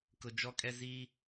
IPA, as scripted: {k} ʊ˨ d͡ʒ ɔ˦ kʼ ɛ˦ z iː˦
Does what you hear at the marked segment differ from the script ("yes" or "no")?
no